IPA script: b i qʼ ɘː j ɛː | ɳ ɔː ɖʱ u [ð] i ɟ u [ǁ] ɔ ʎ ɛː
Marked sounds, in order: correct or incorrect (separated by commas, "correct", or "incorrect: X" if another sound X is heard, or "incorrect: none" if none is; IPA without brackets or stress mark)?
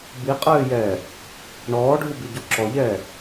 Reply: incorrect: b, correct